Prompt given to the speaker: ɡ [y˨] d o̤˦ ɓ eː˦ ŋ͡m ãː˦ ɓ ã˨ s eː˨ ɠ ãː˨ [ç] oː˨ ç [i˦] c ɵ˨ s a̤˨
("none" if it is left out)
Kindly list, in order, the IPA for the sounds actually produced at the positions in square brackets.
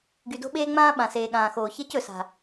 y˨, x, e˦

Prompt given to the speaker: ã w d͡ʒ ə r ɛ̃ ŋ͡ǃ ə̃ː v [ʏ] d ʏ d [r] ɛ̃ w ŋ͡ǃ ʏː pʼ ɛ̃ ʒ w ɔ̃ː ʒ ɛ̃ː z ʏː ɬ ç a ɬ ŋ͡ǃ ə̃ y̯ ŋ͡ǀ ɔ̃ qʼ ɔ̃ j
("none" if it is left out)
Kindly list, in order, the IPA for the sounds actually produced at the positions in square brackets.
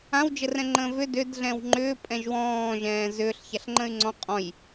ʏ, ɮ

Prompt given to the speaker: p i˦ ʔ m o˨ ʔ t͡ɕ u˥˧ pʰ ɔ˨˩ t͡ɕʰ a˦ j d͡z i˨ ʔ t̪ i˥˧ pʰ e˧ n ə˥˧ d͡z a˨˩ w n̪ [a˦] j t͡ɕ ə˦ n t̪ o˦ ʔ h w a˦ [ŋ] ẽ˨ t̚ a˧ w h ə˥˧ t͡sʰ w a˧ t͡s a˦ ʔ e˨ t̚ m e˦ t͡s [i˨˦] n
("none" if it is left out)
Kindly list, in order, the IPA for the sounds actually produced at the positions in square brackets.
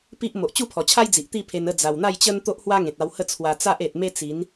a˥˧, ŋ, i˨˦

